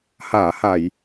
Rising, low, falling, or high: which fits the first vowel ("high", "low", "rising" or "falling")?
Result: low